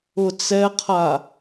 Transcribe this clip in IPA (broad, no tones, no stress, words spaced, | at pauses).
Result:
ʊt͡sɛqʰa